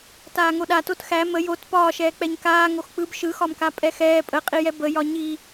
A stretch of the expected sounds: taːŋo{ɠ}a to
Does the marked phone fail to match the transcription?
yes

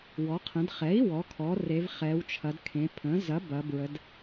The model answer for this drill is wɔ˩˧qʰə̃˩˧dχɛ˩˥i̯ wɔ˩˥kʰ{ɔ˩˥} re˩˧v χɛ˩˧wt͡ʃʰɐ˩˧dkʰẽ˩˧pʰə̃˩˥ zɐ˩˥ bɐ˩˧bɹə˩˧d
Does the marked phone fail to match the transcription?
no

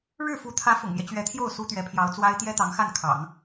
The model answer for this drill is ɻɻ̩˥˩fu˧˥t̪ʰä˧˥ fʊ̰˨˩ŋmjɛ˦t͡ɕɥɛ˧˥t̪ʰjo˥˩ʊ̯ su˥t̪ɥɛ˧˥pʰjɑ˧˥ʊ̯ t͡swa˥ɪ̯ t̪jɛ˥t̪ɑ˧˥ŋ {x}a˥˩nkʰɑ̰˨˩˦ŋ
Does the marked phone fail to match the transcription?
no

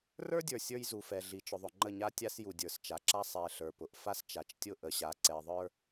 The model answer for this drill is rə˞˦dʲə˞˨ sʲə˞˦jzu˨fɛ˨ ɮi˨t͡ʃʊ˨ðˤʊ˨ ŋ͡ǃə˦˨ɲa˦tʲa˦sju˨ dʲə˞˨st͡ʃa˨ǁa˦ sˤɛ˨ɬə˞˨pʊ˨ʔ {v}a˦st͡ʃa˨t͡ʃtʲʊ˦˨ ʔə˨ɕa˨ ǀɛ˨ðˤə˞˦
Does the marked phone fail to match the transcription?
yes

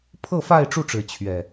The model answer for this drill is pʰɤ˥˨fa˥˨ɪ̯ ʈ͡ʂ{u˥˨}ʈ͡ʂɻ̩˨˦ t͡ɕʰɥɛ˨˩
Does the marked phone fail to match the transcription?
no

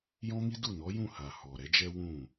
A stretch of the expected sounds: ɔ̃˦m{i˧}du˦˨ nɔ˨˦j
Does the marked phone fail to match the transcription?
yes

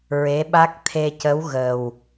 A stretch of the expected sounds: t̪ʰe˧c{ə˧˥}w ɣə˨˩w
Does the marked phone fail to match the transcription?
no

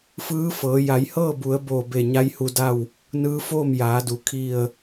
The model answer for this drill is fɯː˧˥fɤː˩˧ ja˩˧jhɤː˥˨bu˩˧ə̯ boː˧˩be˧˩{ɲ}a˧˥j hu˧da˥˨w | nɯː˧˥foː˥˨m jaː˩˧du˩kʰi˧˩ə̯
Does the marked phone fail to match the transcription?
no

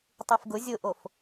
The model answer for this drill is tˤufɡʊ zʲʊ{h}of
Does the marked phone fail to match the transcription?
yes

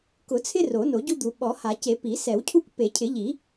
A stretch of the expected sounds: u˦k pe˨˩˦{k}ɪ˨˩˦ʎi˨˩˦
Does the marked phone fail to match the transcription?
yes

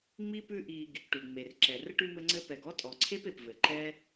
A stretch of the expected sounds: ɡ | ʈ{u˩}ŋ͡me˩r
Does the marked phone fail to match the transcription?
yes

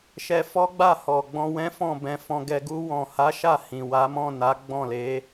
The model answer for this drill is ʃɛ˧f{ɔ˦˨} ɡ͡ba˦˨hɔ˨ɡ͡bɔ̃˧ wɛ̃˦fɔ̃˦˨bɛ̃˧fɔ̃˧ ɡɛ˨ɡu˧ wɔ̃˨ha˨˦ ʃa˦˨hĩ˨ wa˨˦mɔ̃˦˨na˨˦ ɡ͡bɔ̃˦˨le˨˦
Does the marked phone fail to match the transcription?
yes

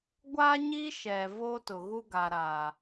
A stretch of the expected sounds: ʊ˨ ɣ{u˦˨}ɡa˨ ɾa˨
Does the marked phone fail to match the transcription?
yes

